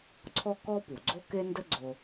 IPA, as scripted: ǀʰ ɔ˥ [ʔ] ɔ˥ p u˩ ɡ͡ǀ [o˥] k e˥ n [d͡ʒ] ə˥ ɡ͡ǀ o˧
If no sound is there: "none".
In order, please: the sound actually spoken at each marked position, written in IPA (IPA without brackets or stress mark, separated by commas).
k, o˥, d